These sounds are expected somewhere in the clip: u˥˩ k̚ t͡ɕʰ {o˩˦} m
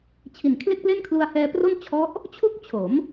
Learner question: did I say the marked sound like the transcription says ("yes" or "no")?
yes